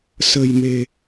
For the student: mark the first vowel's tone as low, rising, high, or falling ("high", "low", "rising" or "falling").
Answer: low